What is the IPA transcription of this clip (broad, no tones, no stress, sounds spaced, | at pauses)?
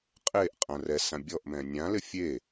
qʼ e ʔ qʼ ã r ɛ s ã bʲ ɔ ʔ m ɛ̃ nʲ ã l ɪ fʲ e